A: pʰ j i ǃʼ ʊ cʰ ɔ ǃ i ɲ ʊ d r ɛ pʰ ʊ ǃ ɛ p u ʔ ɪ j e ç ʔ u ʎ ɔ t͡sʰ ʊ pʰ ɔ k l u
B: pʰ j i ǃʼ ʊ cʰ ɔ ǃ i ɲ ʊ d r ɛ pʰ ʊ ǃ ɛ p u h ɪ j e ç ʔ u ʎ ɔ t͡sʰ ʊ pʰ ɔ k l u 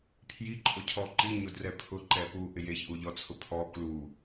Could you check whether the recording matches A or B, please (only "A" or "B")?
A